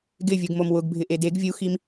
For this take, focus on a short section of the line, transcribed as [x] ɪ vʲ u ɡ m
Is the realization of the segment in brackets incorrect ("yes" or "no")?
yes